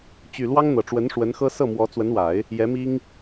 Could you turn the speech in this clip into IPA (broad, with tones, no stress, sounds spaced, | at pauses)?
t͡ɕ y˨˩ l w ɑ˥ ŋ n̪ ɤ˨˩ ʈ͡ʂ w ə˧˥ n ʂ w ə˧˥ n x ɤ˥ s ɤ˥˩ m w ɔ˧˥ t͡s w ə˧˥ n w a˨˩˦ ɪ̯ | j ɛ˧˥ m i˥ ŋ